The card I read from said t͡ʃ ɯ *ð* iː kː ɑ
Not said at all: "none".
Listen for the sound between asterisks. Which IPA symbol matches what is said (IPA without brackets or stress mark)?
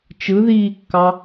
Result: ð